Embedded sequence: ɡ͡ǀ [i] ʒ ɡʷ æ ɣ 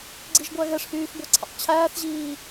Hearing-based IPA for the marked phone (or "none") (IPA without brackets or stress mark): i